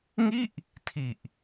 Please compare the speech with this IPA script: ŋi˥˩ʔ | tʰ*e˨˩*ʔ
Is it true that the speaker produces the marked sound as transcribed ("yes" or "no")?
no